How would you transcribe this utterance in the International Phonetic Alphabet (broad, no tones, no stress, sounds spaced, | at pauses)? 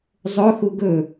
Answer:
zˤ ɵ x u ɡ ɵ